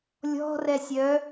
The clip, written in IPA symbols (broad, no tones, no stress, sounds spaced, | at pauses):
lʲ ɔ̤ r ɛ sʲ œ